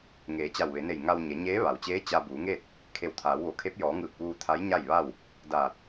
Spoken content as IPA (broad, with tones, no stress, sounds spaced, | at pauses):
ŋ eː˩˧ t͡ɕ a˧˩ w ʋ e˩˧ n e˧˩ j ŋ a˧ w ɲ e˩˧ ɲ eː˧˥ ʋ a˩ w t͡ɕ eː˧˥ t͡ɕ a˧ b uː˩˧ ŋ eː˥˨ t̚ | kʰ e˧˩ w t̪ʰ aː˩˧ w ʋ o˩˧ kʰ e˧˥ p̚ j ɔː˩˧ ŋ ɯː˧˩ k̚ ʋ uː˧ t̪ʰ a˧˥ j ɲ a˥˨ j ʋ a˥˨ w | d aː˧˩ t̚